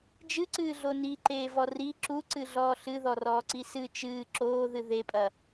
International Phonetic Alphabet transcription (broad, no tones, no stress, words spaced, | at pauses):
d͡ʒɨǀɨːɮo niǃeːvɔ ri ǁuǀɨɮɔː ɬɨðɔrɔːǀi sɨ t͡ʃɨː ǁoːðɨ ðepʼɐ